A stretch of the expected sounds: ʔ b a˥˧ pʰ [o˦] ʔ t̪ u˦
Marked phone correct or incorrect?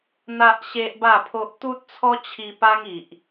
correct